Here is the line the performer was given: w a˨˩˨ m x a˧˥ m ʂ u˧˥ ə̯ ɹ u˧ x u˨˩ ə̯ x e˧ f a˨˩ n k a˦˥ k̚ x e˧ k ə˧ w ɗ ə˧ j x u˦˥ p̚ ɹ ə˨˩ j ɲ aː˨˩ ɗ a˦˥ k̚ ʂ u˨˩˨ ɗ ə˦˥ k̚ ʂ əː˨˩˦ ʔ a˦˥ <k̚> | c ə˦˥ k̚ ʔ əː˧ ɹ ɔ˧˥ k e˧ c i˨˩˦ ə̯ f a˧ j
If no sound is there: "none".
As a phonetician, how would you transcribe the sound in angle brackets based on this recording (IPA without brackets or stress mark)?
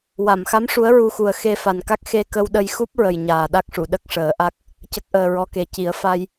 k̚